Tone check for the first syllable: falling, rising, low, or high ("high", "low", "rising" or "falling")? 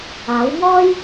rising